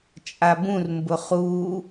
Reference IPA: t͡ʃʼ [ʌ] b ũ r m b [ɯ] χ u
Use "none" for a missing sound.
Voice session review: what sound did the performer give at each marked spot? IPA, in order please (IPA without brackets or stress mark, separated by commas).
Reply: a, ʊ